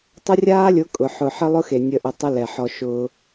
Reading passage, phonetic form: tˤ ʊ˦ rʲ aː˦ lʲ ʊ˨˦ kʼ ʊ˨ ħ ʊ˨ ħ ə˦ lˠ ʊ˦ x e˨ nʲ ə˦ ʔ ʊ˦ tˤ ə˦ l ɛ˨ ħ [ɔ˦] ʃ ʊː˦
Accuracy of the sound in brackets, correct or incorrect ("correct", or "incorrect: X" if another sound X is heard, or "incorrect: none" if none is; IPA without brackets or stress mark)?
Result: correct